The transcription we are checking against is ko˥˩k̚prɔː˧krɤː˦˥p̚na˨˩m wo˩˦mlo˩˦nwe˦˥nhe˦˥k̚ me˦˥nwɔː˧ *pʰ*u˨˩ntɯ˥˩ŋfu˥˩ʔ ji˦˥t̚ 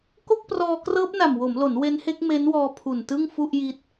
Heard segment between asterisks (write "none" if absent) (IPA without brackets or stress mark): pʰ